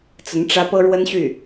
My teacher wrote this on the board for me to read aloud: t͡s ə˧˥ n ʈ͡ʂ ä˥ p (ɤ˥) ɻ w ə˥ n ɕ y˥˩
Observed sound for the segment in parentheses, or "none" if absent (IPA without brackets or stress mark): ɤ˥